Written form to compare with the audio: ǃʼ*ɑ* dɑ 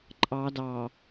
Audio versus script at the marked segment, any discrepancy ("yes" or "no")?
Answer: no